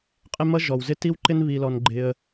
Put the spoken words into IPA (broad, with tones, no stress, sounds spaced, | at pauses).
qʼ ɪ˦ m ʌ˦ ʒ ɔ˨ w z ɪ˦ t i˦ w ǃ ɪ˦ n β i˧ l ɔ˧ n ɡ͡ǃ ɪ˧ ə̯